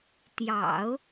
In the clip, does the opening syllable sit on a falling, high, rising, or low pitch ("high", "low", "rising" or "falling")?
low